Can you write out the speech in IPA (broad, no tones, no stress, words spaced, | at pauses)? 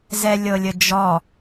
zɛlʲɤlʲəd͡ʒɔ